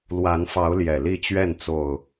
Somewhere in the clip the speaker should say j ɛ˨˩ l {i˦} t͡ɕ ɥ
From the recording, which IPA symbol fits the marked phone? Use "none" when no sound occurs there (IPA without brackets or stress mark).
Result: i˥˨